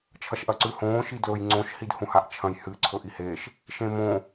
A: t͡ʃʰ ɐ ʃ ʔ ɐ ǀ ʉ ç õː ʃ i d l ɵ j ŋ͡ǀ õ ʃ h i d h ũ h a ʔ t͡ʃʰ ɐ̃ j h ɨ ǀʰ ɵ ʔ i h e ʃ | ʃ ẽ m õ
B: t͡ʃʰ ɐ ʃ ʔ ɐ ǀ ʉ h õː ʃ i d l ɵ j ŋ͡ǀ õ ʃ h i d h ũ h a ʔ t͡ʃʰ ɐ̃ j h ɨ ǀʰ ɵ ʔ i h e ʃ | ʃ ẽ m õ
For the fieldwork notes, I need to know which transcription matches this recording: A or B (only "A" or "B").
B